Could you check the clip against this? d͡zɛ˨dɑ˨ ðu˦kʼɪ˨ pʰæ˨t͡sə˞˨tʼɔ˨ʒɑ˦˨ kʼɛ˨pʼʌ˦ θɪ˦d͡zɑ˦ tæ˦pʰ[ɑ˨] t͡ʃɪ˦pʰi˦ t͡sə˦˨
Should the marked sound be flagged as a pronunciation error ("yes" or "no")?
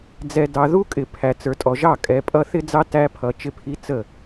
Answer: yes